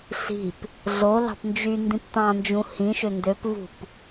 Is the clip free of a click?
yes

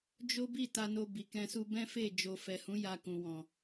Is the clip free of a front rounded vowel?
yes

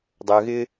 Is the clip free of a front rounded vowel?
no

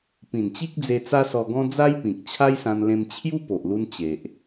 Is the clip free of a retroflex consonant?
yes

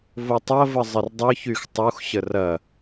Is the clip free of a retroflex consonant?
yes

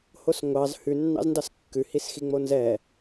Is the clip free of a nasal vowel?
yes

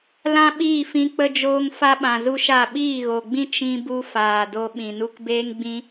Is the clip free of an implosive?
no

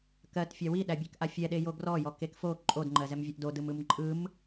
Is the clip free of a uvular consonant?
yes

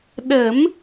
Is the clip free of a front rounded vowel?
yes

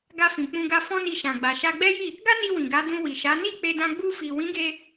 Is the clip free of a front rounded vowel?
yes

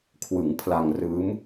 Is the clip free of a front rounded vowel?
yes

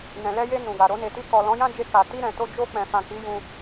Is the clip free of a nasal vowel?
no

